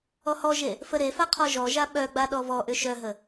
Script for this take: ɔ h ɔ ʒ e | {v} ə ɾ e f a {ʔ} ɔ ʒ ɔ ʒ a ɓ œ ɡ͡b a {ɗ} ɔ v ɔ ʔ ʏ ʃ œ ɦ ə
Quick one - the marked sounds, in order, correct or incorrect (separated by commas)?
incorrect, incorrect, correct